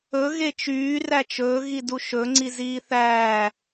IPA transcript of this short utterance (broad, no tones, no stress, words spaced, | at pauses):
ɵ ɣet͡ʃyː ræt͡ʃɵː ɣiduʃɵ ŋ͡ǀiziːθæː